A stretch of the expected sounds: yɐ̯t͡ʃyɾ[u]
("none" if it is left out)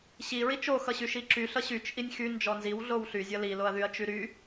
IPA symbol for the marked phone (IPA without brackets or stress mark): y